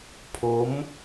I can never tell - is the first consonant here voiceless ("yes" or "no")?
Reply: yes